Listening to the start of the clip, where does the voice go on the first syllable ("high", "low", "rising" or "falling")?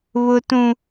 high